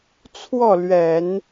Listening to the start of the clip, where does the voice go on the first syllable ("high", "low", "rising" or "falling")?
falling